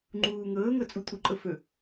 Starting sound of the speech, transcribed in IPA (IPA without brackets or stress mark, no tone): ŋ͡ǃ